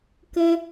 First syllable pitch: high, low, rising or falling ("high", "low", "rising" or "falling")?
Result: high